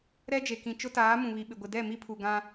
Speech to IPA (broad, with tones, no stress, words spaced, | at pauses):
ɾɛ˦d͡ʒe˨kĩ˨ t͡ʃʊ˦taː˨˦ mũ˨βi˨ɓɪ˨ ɡʷɪ˨dɛ˦˨ mi˦pʰu˨ɡã˦